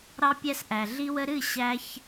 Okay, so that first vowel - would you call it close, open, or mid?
open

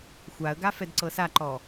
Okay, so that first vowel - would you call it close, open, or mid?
open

